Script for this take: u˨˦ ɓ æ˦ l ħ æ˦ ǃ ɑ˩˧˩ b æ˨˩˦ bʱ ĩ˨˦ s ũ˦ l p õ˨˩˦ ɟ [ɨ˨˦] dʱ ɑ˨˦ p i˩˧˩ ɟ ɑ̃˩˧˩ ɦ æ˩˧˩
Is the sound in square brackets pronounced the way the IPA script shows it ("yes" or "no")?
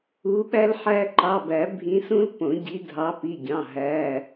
no